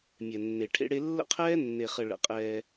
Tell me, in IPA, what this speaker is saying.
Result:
mʲ ɛ˨ nː e˨ ʈʰ ḛ˦ ɽ e˦ lː ə̰˦ qʰ ɛː˦ nː e˨ χ ə˨ ɭ ə̰˨ qʼ ɛː˦

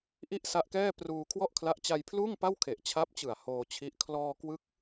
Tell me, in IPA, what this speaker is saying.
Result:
ʔ i˥˩ ʔ s a˦˥ ʔ k ɛː˥˩ p r uː˧ kʰ w ɔ˥˩ ʔ kʰ l a˦˥ ʔ t͡ɕ a˧ j pʰ l uː˥˩ ŋ p a˥˩ w kʰ e˨˩ ʔ t͡ɕʰ a˦˥ p̚ t͡ɕ ɯ˨˩ a̯ h oː˧ t͡ɕʰ i˦˥ ʔ kʰ l ɔː˧ k w ɯ˦˥ k̚

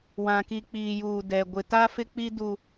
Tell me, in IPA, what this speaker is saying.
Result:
w ã˨ k i˨ k͡p iː˨ j uː˨ d ɛ˨ ɡʷ ɪ˨ t a˦ f ɪ˦ k͡p i˦ d u˦

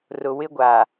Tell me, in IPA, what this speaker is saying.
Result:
r ʊ˨ w ɪ˦ ɡʷ a˨

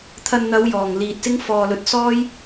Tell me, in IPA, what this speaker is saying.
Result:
t̪ʰ ɐ˨ n n̪ ɐ˨˧ w j ɔː˨˩ ŋ l iː˨ t̚ s ɪ˥ ŋ f ɔː˨ l ɵ˨˥ t̚ s ɔː˥ j

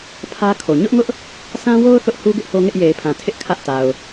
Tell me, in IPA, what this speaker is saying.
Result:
pʰ ä˦ kʰ o˨ ɲ ʊ˦ ʔ ŋ ʊ˦ ʔ | sʰ ã˦ w o˦ ʊ̯ θ ʊ˦ ʔ h u˦ ɡ ɪ˦ ʔ h o˦ ŋ ɪ˦ ʔ j e˨ ɪ̯ pʰ ã˨ tʰ ɪ˦ ʔ kʰ ä˦ ʔ t a˨ ʊ̯

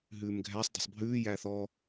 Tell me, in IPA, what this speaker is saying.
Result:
ɦ ʉː m ɡʱ æ sˤ d æ̤ sˤ bʱ ʉː j æː θ ɔ

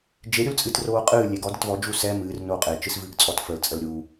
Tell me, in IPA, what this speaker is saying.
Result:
d͡ʒ e ɾʲ u l t͡sʼ ɨ t r oː qʼ ɨː lʲ e ɡ ɔ d ə t v ɔ d͡ʒ u s ɛ m ɨː r n oː qʼ e t͡ʃ ɨ s v ɨː ɡ t͡sʼ ɔ t f ə l t͡sʼ ə l ɾʲ u

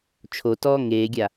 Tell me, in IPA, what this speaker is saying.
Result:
t͡ʃʰ o t ɔː ŋ eː ɡʲ a

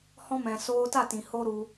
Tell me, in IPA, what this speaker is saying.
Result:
h ɔ̃˧ m ɛ̃˨ s oː˧ t a˦˨ t ĩ˨ h o˦ ɾ u˧

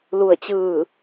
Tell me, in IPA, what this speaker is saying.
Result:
l u˥˨ ə̯ t͡ɕ ɯː˥˨

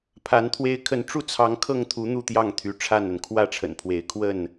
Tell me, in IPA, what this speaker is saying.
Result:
pʰ a˨˦ n t̪ʰ w e˦ ɪ̯ kʰ ə˨˦ n ʈ͡ʂ u˥˨ t͡sʰ ɑ˨˦ ŋ kʰ ɤ˥˨ ŋ t̪ʰ u˨˦ n̪ u˥˨ t̪ j ɑ˥˨ ŋ t̪ʰ y˨˦ ʈ͡ʂʰ a˥˨ n ə˩ n kʰ w ä˥˨ ʈ͡ʂʰ ə̰˨˩ n pʰ w e˨˦ ɪ̯ kʰ w ə˥˨ n

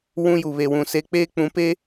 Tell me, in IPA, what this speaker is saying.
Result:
w ũ˦ j u˨ β e˨ w ũ˨ s e˦ k͡p eː˦ k͡p ũ˨˦ p e˦

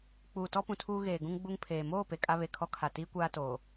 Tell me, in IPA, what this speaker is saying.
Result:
k͡p uː˨ t ɔ˦ p ũ˨ tʰ uː˦ ɣ eː˨ ɡ ũ˦ ŋ ɡ͡b u˦ ŋ pʰ eː˨ m oː˦˨ p e˨ kʼ a˦ β e˨ kʰ ɔ˦ kʰ a˨ t iː˦ kʷ aː˦ t oː˨

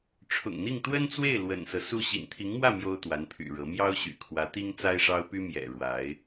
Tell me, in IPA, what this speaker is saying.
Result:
ʈ͡ʂʰ ʊ̰˨˩ ŋ n̪ i˥˩ ŋ t̪ w ə˥ n t͡s w e˥˩ ɪ̯ l w ə̰˨˩ n s ɤ˦ s u˥˩ ɕ ḭ˨˩ n t̪ʰ i˧˥ ŋ m w ä˥˩ m j o˥ ʊ̯ t̪ w a˧˥ n pʰ y̰˨˩ ɻ ɤ˧˥ m j ɑ˥ ʊ̯ ɕ y̰˨˩ kʰ w ä˧˥ t̪ i˥ ŋ t͡s a˥ ɪ̯ ʂ ɑ˥ ʊ̯ p y˥ m j ɛ̰˨˩ ɻ w a˧˥ ɪ̯

